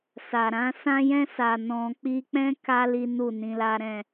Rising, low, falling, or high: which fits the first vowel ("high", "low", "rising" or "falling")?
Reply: low